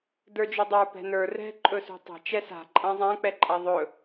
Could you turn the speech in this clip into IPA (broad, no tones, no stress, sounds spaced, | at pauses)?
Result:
d ə˞ d͡ʒ ʏ dˤ ə˞ p ɛ̤ n ə˞ r ɛ̤ ǃʼ ɵ s ṳ tˤ a̤ t͡ʃ ɛ s a̤ ǃʼ ã zˤ ã k͡p ɛ ǃʼ a ðˤ ɵ